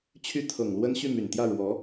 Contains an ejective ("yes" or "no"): no